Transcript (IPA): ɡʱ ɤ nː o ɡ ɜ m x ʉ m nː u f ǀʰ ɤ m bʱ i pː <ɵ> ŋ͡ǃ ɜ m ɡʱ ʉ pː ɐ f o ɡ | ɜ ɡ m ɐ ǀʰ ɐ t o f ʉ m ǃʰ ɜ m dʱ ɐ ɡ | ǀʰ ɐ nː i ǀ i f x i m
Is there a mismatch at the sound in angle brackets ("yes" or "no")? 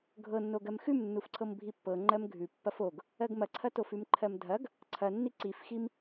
yes